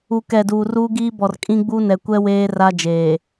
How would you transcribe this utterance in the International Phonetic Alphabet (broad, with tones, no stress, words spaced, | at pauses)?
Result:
u˨kɛ˨ duː˨ruː˦ɡiː˦bɔ˨r kʼĩ˦ɡ͡bu˦nɛ˨kʷɛ˦ weː˦ra˦ d͡ʒeː˨